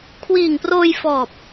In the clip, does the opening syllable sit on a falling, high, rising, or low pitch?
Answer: low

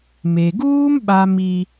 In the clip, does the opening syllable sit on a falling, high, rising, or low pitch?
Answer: low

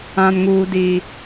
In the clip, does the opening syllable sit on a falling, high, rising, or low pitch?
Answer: low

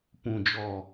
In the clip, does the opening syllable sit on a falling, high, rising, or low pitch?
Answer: low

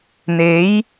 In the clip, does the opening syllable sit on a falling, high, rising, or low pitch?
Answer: rising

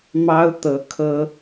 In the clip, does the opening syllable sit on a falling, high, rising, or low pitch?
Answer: high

